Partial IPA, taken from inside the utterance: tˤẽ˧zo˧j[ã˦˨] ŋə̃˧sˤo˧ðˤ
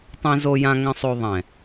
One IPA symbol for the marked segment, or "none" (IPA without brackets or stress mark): ã˧